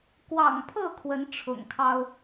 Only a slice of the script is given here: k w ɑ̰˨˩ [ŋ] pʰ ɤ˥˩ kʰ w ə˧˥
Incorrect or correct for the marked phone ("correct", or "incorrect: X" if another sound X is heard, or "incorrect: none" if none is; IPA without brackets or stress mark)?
correct